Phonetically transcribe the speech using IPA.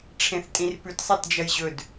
ʈ͡ʂʰ ẽ θ tʼ ĩ r p ʉ t sˤ e t d͡ʒ ɐ j ʑ ɵ d

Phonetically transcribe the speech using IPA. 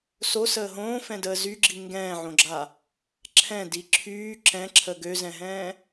s o s əː ɦ õː f ɛ̃ d əː z y ɡ͡ǁ i ŋ ɡ ɛ̃ː ʕ õ ɡ͡ǁ a | ǁʰ ɛ̃ d i ǁʰ yː ǁ ɛ̃ ǁʰ ə ɡ ø z ɛ̃ ɦ ɛ̃ː

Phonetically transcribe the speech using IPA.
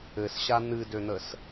ɘ s ɕ a n̪ ɨ d ø n̪ ə s

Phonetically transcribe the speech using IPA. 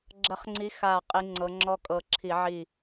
ɡ͡ǁ ə˨˦ χ ŋ͡ǀ i˨˦ x a˧˩ qʼ i˨˦ ŋ͡ǀ ɤ˨˦ ŋ͡ǁ ɔ˦ kʼ ɤ˧˩ ǁʰ i˧˩˧ ʕ i˥˨

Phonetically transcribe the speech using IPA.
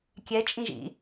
kʲ ɛ t͡ʃʼ ĩ ʒ ḭ

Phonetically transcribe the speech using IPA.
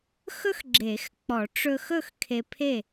x ɵ˥ x ɡ͡ǁ e˨˩˦ x k͡p ɔ˨˩˦ ʈ͡ʂ ɵ˧ x ɵ˥˨ x kʰ e˧ pʰ e˥˨

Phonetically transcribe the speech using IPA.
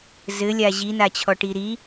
z ɘ lʲ a ʑ i n a t͡ɕʰ ɔ ʈ i ɾ i

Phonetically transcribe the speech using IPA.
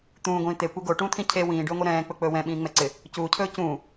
t̪ ũː ɡʷ ĩː t̪ e kʷ e ɡ o ʈ ũː t̪ʰ ĩ cʰ e w ĩː ɖ ɵː ŋʷ e ɾ ɛ̃ː k͡p ɵ k͡p ɵː w ɛ̃ ɓ ĩː ŋ͡m ɛ ǀ ɪ | c uː cʰ ɵː c ũː

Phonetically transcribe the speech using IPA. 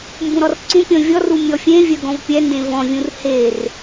m b ũ ɾ ɔ r ǀ ũ pʲ ɔ̃ vʲ ɔ r u mʲ ɔ fʲ ẽ vʲ œ ɡ ɔ̃ v pʲ ɛ n d ẽ v ɔ̃ vʲ ũ r h e r

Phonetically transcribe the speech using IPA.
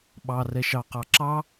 ɓ ɑ r ɛ ʃ ɑ q ɑ ǁ ɑ

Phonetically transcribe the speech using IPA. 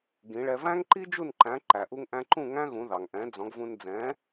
ɡ ĩ˩˥ ɭ ɛ˧ v æ̃˥ ŋ ǃ i˥ d͡ʒ u˥˩ n ǃ æ̃˩˥ ǃ æ˩ ʔ u˧ ŋ ʔ æ̃˧ ǃ ũ˥˩ ŋ æ̃˥ ɣ ũ˩˥ ð ɑ˩ ŋ ʔ ɛ̃˩˥ d͡z ɔ̃˩˥ ɡ v ũ˧ n d͡z ɛ̃ː˩˥

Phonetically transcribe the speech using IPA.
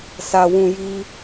s a˨ w ũ˨ j i˦

